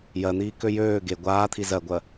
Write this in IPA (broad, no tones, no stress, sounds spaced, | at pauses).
j ɜ n̪ iː k ø j øː ɡ e ɡʷ aː t̪ʰ i z ɜ ɡʷ ɜ